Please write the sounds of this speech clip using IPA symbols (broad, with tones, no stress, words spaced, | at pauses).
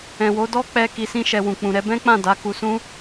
ɛ̃˨wo˨˦ dɔ˦k͡pɛ˧ ki˨sĩ˧ʃɛ˨ wũ˨k͡pũ˨ɾɛ˨˦ bɛ̃˦k͡pã˦˨da˨˦ ku˧sũ˦